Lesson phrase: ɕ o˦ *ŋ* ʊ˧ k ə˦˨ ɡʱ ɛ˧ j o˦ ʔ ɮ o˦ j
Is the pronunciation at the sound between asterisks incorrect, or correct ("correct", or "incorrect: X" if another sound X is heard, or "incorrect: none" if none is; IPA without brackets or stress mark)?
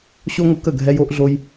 correct